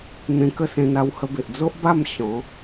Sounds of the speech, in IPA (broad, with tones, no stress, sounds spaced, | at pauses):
n̪ ẽ˧ k ə˥˧ s ẽ˧ n a˧ w h ə˧ b e˨ ʔ d͡z o˦ ʔ b a˥˧ m ɕ ɔ̃˨˦